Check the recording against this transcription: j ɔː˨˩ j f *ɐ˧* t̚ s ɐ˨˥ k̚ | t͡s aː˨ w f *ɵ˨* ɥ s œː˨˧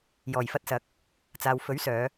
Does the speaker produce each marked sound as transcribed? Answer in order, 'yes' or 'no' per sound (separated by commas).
yes, no